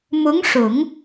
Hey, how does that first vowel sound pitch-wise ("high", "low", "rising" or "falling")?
rising